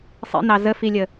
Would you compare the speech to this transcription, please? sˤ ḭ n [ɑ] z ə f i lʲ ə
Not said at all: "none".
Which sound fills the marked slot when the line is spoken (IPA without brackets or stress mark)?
ɑ